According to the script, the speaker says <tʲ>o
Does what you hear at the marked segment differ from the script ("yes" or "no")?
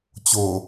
yes